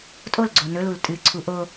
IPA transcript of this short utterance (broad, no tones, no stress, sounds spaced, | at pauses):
tʼ o l ɡ͡ǀ o n ɵ l u l tʼ ɨ ǀʰ u ʔ o